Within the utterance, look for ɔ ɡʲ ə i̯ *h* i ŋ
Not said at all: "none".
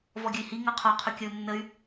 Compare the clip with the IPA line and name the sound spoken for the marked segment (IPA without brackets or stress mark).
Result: h